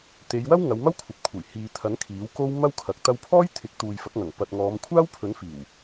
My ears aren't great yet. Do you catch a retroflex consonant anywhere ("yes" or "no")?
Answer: no